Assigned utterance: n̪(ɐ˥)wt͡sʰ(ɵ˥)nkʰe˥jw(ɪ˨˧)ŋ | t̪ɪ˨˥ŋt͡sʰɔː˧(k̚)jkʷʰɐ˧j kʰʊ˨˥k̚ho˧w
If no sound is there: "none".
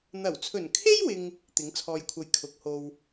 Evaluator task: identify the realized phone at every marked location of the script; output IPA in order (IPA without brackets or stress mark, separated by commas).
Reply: ɐ˨˩, ɵ˨˩, ɪ˨, none